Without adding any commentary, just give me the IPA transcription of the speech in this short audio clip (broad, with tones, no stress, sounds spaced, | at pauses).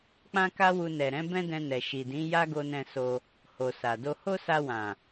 k͡p ã˦ k a˦ w u˧ n ɛ˨ ɾ ɛ̃˨˦ b ɛ̃˦ d ɛ̃˧ n ɛ˨ ʃ i˨ d ĩ˨˦ j a˦ ɡ o˧ n ɛ̃˧ s o˧ | h o˨ s a˨ d o˧ h o˦ s a˧ w ã˨